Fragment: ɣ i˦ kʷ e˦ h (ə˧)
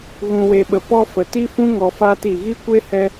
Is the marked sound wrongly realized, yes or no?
yes